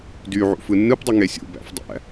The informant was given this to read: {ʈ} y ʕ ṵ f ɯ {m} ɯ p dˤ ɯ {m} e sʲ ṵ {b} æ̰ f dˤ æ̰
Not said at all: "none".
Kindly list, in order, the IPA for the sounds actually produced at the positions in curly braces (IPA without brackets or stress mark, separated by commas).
d, nː, ŋ, b